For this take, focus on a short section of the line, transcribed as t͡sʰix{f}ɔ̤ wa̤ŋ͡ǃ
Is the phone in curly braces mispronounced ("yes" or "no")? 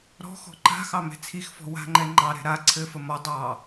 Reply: no